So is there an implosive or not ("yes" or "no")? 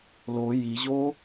no